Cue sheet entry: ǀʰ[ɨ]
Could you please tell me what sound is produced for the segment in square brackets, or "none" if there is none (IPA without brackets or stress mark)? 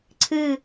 ɨ